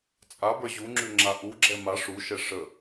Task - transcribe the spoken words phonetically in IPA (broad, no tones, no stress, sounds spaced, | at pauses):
t͡sʼ a b ə˞ ʑ u ŋ͡ǁ ʉ ŋ͡ǁ a ʔ u ɡ͡ǁ ɛ m a ʂ u ʃ ɛ ʂ ə